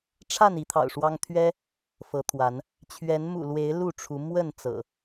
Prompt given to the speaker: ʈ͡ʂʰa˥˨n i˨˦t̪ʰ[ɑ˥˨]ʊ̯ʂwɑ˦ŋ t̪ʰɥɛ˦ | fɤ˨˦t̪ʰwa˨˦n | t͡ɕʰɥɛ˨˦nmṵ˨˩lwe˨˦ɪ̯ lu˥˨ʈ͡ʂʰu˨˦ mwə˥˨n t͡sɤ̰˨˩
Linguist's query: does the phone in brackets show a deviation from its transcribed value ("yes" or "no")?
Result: yes